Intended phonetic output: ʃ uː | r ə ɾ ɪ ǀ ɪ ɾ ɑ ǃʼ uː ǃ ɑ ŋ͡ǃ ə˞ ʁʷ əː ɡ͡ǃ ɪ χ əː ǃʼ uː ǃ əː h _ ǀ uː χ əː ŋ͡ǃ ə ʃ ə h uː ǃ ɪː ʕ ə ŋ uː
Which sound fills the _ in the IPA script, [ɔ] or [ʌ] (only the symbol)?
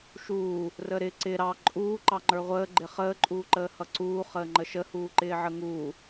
ʌ